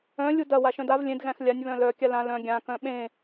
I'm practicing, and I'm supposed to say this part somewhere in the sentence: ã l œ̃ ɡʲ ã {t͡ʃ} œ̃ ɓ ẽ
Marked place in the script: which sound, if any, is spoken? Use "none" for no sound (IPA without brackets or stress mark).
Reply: k